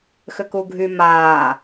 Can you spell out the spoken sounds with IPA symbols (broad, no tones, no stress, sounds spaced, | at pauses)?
x ʏ k u ɡʱ y m aː